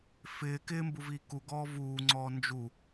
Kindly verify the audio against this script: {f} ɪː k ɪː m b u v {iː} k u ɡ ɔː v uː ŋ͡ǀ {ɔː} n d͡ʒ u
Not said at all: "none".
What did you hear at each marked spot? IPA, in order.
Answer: f, iː, ɔː

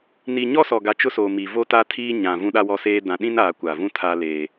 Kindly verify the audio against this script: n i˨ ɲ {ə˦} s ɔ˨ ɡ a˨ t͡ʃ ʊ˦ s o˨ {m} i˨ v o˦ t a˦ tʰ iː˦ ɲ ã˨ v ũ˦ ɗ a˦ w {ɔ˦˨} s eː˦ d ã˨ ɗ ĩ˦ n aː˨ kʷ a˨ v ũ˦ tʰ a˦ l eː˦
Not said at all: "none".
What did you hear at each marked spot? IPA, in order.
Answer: ɔ˦, m, ɔ˦

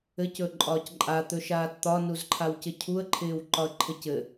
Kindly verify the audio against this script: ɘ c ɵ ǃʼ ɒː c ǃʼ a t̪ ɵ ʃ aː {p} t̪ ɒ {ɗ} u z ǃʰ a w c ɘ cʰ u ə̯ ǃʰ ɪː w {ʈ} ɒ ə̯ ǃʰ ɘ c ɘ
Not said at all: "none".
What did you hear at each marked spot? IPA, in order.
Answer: t, n, ǃ

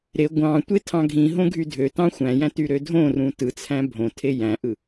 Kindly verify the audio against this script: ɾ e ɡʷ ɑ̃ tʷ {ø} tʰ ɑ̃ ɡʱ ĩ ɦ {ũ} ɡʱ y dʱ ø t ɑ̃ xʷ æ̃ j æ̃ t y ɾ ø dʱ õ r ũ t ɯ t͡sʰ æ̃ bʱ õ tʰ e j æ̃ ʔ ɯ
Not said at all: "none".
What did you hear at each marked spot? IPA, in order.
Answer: e, õ

